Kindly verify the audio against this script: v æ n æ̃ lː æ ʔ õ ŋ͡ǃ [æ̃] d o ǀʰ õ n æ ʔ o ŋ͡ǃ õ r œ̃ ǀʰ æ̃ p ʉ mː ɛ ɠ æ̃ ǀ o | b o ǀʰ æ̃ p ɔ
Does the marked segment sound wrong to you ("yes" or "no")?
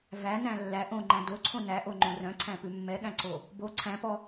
no